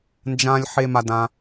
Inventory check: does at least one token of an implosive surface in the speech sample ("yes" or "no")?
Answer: no